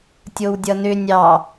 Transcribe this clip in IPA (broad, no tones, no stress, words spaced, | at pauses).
tʲowdʲʌnʏ nʲɑ